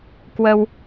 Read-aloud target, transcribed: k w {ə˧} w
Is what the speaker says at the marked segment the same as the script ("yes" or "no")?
yes